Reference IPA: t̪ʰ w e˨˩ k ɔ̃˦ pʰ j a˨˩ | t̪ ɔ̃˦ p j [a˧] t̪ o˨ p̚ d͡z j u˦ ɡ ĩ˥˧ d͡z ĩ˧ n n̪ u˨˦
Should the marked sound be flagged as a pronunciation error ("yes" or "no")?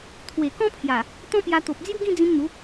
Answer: no